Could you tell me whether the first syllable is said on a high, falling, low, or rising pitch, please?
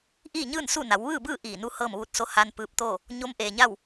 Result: falling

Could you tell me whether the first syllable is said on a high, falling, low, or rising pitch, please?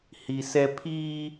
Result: low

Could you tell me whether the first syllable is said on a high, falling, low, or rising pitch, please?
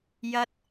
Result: high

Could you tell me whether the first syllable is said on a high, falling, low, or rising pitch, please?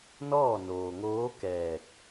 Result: falling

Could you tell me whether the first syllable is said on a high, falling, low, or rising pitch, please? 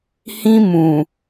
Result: high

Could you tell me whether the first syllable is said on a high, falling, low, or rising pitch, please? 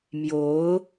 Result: rising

